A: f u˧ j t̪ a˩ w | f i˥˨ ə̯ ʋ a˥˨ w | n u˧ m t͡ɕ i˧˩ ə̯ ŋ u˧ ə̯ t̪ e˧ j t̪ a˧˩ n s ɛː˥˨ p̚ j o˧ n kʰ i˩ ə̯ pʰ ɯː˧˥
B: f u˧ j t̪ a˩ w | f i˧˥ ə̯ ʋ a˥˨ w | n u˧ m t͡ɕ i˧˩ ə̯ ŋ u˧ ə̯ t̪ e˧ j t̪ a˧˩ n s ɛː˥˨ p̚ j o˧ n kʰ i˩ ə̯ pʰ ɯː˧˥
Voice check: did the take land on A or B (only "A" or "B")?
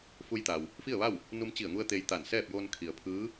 A